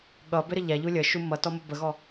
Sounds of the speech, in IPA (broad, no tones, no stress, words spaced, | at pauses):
ɠʌbɪɾə ʎaʎu lʲəʃu mʌtɔmo bəɣɔ